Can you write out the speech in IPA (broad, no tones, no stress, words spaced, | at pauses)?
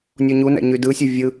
nʲoɲunæ̰ ɲydɯsʲø vʲɯ